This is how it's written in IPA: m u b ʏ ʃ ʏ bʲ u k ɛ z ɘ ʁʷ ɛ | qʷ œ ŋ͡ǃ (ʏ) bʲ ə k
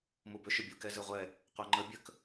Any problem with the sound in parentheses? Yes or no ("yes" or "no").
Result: yes